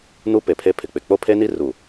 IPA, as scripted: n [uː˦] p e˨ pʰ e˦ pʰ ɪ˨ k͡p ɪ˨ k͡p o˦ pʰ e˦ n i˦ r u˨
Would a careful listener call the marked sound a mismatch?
yes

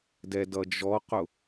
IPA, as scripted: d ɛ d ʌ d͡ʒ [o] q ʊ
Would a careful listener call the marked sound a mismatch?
yes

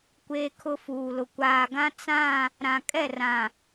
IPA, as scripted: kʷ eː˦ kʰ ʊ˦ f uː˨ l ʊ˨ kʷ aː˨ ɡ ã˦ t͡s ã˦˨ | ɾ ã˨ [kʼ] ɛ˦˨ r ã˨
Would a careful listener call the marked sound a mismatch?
no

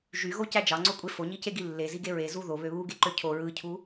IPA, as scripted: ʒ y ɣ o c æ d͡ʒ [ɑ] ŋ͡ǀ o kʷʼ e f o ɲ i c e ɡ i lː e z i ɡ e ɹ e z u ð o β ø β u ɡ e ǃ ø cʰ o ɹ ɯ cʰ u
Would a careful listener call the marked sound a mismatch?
no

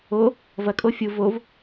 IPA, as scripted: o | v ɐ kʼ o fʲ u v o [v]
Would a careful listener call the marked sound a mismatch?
no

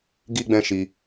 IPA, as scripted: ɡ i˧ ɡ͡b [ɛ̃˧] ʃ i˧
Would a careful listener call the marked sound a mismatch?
no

